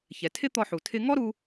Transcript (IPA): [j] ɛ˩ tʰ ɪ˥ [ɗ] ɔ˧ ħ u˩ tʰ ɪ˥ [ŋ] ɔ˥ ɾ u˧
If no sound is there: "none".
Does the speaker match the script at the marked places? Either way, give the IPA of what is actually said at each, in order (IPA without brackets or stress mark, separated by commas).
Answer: ç, t̪, ŋ